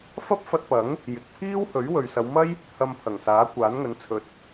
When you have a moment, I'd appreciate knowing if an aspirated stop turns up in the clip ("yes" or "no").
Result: yes